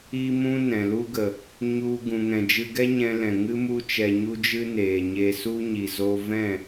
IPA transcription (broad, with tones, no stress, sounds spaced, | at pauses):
i˦ m ũ˦ n ɛ̃˨ l u˦ ɡ ə˨ | ɲ u˧ ɡ ũ˧ ŋ ɛ̃˧ d͡ʒ ɨ˧ ɡ ɛ˦ ɲ ɛ̃˧ l ɛ̃˨ ŋ ɨ˦ m u˦ t͡ʃ ɛ˧ ɲ u˦ d͡ʒ ɨ˦ n eː˨ ɲ e˧ s u˦ ɲ i˨ z o˧ v ɛ̃˦˨